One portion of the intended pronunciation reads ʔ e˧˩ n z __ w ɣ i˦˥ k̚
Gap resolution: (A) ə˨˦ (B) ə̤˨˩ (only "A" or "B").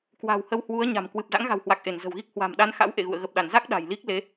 B